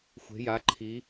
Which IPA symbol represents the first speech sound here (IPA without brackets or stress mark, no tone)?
xʷ